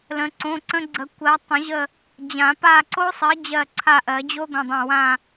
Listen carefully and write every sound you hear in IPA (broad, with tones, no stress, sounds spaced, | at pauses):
l ə̃˨˥ ǀ õ˧˥˧ ǀ ə̃˦˥ ɡ͡ǀ ə˨˥ kʷ ɜ˨˥ tˤ ə̃˨˩˦ ʑ ə˦˨ | d͡ʑ ã˨˩˦ p a˦˨ ǀ o˦˥ sˤ ɜ˨˥ d͡ʑ ɜ˦˨ ǀʰ a˦˨ ʔ ɜ˨˩˦ d͡ʑ o˦˥ ɡʷ ə̃˧˥˧ dˤ ə̃˦˨ w ã˦˨